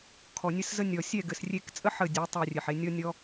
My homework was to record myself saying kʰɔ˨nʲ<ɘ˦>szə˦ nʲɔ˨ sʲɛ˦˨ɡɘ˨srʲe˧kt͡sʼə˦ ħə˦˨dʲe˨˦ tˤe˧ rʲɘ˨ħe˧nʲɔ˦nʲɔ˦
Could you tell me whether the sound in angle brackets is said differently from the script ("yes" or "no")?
no